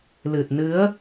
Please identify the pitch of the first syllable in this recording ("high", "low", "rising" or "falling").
low